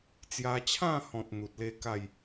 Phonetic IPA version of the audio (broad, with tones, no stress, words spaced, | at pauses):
t͡sja˧t͡ɕʰã˥˧hɔ̃˨t̚ n̪u˨t̚le˦ ka˥˧j